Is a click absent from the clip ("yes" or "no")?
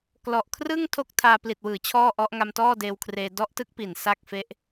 yes